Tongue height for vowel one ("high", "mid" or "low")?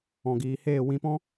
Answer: mid